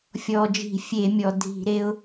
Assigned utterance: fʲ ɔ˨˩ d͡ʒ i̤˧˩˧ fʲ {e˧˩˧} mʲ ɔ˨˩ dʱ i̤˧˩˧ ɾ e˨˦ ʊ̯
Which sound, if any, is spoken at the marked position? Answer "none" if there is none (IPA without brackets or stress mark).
e˧˩˧